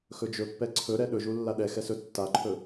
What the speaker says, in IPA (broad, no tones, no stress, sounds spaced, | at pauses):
x ɵ d͡ʒ ɵ pː ɛ ǀʰ ɵ ɾ ɛ ɗ ɵ ʒ u lː a ɗ ɛ x ɛ s ɵ tː a ǃʰ ɵ